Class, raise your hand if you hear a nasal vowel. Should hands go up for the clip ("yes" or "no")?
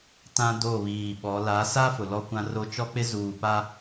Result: yes